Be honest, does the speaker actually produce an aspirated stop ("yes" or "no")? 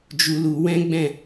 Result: no